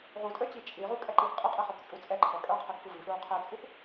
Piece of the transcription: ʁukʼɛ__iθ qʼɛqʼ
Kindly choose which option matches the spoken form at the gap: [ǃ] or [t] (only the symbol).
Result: ǃ